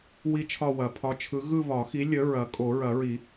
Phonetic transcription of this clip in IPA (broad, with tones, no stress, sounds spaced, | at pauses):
w i˥˧ t͡ʃʰ ɒ˥˧ w ɐ˨˩˦ pʰ ɒ˨˥ t͡ʃʰ ɯ˨˥ ɣ ɯ˥˧ β ɒ˨˩˦ x i˨˥ lʲ ə˨˥ ɹ ɐ˨˩˦ kʼ o˨˩˦ ɹ ɐ˨˩˦ ɹ i˨˩˦